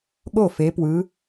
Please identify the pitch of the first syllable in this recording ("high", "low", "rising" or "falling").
falling